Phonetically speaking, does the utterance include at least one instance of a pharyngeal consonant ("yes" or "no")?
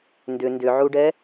yes